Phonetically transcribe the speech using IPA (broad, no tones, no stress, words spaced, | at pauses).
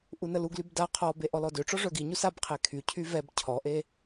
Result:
ʔunəluɡlyb da qʰɔbe ʔɔlɔdøʈ͡ʂɔ ʐœɡiɲus abqʰe kʰycʰy vɛb cʰɔʔe